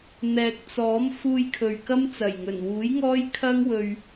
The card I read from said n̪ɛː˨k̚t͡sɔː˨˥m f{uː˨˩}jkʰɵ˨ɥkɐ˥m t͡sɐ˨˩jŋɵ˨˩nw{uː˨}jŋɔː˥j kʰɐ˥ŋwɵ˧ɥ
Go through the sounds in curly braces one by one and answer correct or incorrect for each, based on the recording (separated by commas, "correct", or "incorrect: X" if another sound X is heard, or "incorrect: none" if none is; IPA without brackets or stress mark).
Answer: incorrect: uː˧, incorrect: uː˨˥